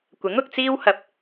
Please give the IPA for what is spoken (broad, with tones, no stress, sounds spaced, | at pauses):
kʷ ɪ˨˥ ŋ ʊ˧ k̚ t͡s iː˥ w h ɐ˧ p̚